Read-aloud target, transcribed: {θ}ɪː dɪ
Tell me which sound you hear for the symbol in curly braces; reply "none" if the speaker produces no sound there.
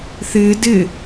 θ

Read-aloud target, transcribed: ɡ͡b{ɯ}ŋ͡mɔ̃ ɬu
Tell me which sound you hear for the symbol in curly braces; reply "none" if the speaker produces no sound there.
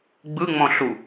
ɯ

